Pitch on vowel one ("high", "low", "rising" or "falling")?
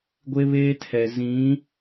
high